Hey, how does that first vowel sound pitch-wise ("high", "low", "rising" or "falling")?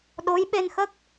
rising